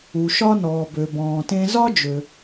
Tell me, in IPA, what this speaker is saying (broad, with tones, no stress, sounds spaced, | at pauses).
u˩ ʃ ɒ˥ n ɔː˩ b ø˩ b ɔ̃ː˩ t ẽ˧ z ɒ˥ d͡ʒ ø˩